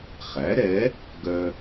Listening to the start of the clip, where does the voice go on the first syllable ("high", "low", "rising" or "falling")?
rising